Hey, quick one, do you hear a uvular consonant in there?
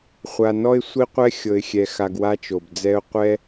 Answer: yes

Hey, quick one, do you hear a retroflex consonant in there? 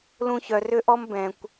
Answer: no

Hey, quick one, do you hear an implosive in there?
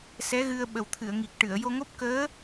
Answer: yes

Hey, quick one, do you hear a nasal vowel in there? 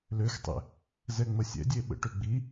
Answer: no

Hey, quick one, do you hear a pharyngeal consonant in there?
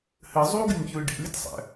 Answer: no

